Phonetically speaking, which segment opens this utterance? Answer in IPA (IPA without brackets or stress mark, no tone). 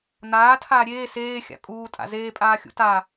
n̪